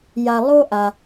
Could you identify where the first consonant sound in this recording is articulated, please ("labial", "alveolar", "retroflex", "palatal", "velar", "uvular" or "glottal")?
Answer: palatal